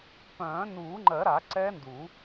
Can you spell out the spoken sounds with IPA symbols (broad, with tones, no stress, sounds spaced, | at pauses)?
p œ̃ː˨˩˦ n uː˨˩˦ ŋ͡ǃ ɜ˨˩˦ ɾ a˨˩˦ ǀ ɛ˦˥ n d u˨˩˦